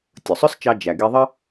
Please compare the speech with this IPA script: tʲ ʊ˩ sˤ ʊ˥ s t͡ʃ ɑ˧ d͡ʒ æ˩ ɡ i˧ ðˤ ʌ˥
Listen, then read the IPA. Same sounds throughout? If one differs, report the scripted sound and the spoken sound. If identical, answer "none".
none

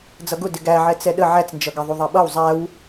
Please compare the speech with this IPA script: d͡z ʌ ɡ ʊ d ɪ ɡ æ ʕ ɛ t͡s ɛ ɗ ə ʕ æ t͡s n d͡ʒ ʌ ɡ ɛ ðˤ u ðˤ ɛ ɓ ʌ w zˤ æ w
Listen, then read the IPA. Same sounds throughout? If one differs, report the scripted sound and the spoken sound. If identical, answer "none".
none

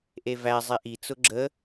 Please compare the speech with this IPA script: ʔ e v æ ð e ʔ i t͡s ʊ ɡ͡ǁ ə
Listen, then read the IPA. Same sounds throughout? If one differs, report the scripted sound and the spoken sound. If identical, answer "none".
ð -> zˤ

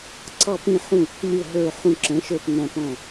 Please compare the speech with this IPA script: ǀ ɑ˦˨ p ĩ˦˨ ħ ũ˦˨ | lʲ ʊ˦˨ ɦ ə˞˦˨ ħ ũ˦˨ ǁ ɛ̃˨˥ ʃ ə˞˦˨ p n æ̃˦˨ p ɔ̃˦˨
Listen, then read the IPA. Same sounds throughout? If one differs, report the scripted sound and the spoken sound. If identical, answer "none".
none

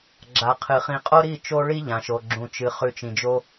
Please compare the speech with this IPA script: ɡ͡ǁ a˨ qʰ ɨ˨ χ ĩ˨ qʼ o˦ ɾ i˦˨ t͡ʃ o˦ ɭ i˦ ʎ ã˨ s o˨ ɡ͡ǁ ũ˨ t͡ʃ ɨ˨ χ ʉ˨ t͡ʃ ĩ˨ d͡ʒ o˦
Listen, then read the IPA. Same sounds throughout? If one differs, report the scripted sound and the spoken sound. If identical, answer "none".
s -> ʃ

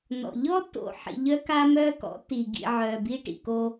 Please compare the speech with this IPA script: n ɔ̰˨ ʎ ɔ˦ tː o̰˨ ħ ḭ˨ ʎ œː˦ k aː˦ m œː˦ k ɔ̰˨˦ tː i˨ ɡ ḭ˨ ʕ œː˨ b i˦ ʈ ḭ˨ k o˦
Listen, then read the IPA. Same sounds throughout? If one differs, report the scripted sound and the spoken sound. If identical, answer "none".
none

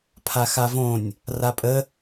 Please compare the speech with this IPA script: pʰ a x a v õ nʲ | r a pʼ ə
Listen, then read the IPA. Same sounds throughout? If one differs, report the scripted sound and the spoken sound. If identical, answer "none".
none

